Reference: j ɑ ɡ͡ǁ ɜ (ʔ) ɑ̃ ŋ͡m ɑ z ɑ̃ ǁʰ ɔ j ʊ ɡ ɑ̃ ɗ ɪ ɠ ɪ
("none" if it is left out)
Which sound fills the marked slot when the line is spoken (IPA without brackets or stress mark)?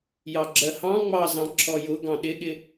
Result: h